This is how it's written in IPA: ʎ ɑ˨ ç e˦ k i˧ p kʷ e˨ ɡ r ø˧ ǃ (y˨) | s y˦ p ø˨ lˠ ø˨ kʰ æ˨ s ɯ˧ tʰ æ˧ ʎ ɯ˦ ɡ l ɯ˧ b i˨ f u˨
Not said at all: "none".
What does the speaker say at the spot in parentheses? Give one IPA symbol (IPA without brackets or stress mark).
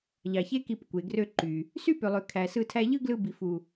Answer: y˨